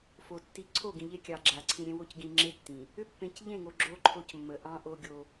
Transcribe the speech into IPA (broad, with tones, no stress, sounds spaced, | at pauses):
f o˨ tː i˨ ǀʰ o˦˨ ɡ ĩ˨ ʎ e˦ kʲ ɑ˨ ɡ͡ǁ a˨ ǀʰ ĩ˨ ɾʲ ẽ˦ w o˦ c ɡ ĩ˨ ŋ͡ǁ e˦ tː ĩ˨ | ʏ˦ pː ẽ˨ c ʎ ẽ˦˨ ŋ o˨ ɡ͡ǁ o˦ ǃʰ o˦ c mː ə˨ ʔ ɑ̃˦ ʔ o˦ ɡʲ o˦